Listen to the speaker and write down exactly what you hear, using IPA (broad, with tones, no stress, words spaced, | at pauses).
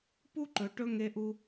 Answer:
pu˥ǃɵ˧ ʈɵ˥ ŋe˥ʔu˥